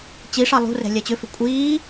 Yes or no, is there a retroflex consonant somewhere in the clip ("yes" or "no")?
yes